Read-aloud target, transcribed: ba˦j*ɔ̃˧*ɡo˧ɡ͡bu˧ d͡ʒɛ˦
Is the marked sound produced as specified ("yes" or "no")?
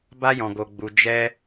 yes